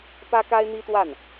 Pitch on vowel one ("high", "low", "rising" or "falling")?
high